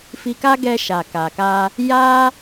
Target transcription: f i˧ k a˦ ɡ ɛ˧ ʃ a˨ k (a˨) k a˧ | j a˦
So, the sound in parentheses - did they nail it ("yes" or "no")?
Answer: yes